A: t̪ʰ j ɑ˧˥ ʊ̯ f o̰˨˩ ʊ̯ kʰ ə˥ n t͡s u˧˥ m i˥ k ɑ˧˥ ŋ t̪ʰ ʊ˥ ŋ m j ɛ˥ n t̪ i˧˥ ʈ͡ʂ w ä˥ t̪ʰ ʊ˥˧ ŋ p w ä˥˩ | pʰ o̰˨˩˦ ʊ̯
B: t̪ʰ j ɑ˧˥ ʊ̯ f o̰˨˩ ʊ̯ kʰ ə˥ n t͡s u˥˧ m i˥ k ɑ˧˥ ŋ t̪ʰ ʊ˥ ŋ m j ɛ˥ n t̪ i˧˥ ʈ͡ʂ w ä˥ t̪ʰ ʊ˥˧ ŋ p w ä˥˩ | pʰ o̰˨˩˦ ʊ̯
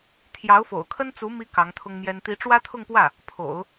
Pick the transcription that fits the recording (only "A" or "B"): A